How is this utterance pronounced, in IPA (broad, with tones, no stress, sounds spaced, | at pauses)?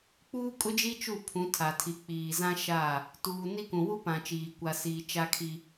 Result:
k͡p uː˦ kʼ ʊ˦ d͡ʒ i˦ t͡ʃ u˦˨ pʰ ũ˨˦ tʰ a˨ tʰ i˨ k͡p iː˨ z ã˦ ʃ a˦˨ | t uː˨ n i˦ k ũ˨ w u˦ p ã˨ t͡ʃ iː˨ kʷ a˨ s iː˨ t͡ʃ a˦ kʰ i˦